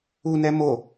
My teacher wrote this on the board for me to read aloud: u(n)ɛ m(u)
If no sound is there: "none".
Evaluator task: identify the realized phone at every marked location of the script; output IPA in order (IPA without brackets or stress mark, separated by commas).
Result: n, o